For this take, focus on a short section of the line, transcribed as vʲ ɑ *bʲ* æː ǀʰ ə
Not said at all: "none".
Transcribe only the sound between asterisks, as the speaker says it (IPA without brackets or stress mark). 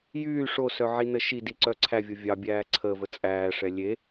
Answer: bʲ